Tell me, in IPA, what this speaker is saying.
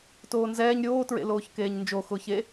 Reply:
t oː n z ɛː ɲ ɾʲ oː t ɹ ḛ l oː ç k eː ɲ n d͡ʒ o x ʊː ç e

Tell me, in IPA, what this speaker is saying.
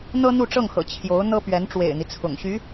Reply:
n̪ ɤ˥ n̪ u˥˧ ʈ͡ʂ ɤ˥˩ ŋ x ɤ̰˨˩ t͡ɕʰ j o˧˥ ʊ̯ n̪ ɤ˥ p ɥ ɛ˧˥ n ʈ͡ʂ w ḛ˨˩ ɪ̯ n̪ i˦ t͡sʰ ʊ̰˨˩ ŋ ɕ y˧˥

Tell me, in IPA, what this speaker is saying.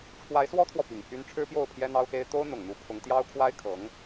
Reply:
ʈ͡ʂʰ w a˧˥ ɪ̯ s w ɔ˥ t̪ʰ w ɔ˨ p i˨˩ ŋ pʰ y˥ n ʈ͡ʂʰ ɻ̩˥ p j o˥˩ ʊ̯ pʰ j ɛ˥ n̪ ɑ˥ ʊ̯ x e˥ ɪ̯ t̪ o˥ ʊ̯ n̪ ʊ˨˩ ŋ n̪ u˧˥ pʰ ʊ˧˥ ŋ t̪ j ɑ˥ ʊ̯ kʰ w a˥ ɪ̯ kʰ ɤ˧˥ ŋ

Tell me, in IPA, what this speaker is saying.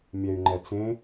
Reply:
mʲ ɛ y̯ ŋ͡ǃ ɛ t͡s ẽ

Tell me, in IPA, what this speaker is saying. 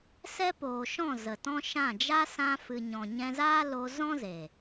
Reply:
s ɛ˦ p oː˨ ʃ ɔ̃˦˨ z ə˨ t ɔ̃˦ ʃ ã˦˨ d͡ʒ a˦ s ã˧ f ɨ˨ ɲ ɔ̃˨ ɲ ɛ̃˧ z aː˦ l o˧ z ɔ̃˦ z eː˨

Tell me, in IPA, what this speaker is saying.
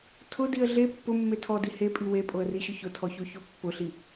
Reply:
tʰ ʊ d i ə̯ ɮ e pː ʊ mː e tʰ ɔ d i h e pʼ i w e pʼ o ə̯ r i ɕ ʊ ç ʊ tʰ ɔ ç o ç o pː ʊ ɬ i

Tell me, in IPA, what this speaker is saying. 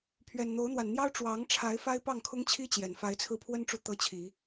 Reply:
pʰ ɥ ɛ˨˩ n n̪ o˨˦ ʊ̯ n̪ w a˨˩ n n̪ j ɑ˦ ʊ̯ ʈ͡ʂ w ɑ˨˦ ŋ ʈ͡ʂʰ a˨˦ ɪ̯ f a˦ ɪ̯ p ɑ˥˨ ŋ kʰ ʊ˦ ŋ t͡ɕʰ i˦ t͡ɕ j ɛ˨˩ n f a˨˦ ɪ̯ t͡sʰ ɹ̩˧ pʰ w ə˦ n ʈ͡ʂ u˨ t̪ ɤ˦ t͡ɕʰ i˨˦

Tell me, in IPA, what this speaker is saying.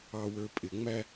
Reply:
ɑ w ə˞ pʼ ɪ ŋ͡m æ

